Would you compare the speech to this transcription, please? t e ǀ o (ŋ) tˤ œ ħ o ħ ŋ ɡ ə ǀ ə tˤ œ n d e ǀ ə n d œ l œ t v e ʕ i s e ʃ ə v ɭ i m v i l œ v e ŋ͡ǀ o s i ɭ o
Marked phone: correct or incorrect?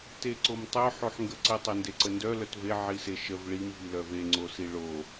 incorrect: m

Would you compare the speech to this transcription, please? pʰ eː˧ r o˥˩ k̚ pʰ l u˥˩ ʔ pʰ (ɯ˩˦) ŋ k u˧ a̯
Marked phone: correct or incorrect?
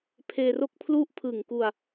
incorrect: ɯ˨˩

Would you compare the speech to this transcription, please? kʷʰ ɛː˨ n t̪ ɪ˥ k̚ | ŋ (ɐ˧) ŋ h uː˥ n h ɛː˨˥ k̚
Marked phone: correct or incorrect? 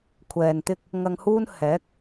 correct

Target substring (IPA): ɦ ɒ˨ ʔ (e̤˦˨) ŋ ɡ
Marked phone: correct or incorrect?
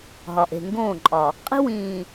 incorrect: e̤˨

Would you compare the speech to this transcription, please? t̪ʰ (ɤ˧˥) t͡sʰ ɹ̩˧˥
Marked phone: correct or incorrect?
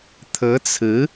correct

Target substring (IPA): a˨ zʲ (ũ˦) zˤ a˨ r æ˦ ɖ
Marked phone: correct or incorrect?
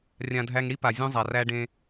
correct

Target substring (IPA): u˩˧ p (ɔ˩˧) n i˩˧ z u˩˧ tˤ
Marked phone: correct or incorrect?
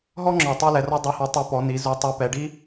correct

